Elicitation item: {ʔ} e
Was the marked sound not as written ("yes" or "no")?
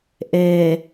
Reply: no